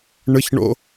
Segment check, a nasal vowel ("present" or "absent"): absent